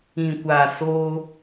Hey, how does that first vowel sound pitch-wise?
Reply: low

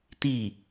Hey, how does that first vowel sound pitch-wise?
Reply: falling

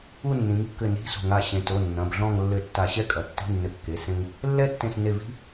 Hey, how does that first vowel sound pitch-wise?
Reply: falling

